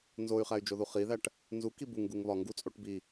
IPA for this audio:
n z o y̯ χ æ y̯ d͡ʒ o ð u χ i ð æ ʈ | n z u k i b u ŋ ɡ u ŋ β ɒ ŋ ɡ u t͡sʼ o ʈ b i

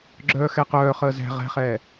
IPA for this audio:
ɡ͡ǁ œː x ɛ q œː χ əː z ɛ̤ ʁ ɛ̤ χ ɛː

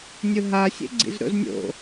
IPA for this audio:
nʲ ʊ ɦ a sʲ ḛ ɡ͡ǀ ḭ z ɾ o̰ z nʲ o̰

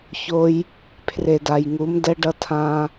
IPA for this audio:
ç o˧ j | pʰ r e˨ d a˨ j ŋ u˨˦ m d ɛ˦ ɖ ʌ˦ tʰ ã˦

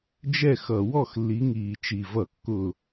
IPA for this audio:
d͡ʒ ɛ˥˩ x ʌ˧˩˧ w ɔ˥˩ x lː i˨˦ ŋ iː˨˩ t͡ʃ i˨˩ v ʌ˧˩˧ kː ʊː˨˩

